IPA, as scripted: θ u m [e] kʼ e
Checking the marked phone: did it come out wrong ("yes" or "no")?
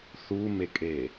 no